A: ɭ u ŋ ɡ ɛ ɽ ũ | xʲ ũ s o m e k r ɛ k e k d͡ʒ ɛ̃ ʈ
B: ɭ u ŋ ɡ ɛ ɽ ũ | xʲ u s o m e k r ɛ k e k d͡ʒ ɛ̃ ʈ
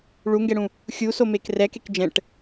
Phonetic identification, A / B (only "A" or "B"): B